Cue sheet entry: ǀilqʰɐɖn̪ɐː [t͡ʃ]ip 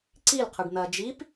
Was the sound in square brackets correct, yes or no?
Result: no